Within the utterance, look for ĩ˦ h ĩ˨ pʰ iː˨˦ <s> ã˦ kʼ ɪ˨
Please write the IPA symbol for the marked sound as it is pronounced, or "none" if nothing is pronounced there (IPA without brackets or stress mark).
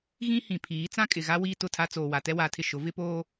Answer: t͡s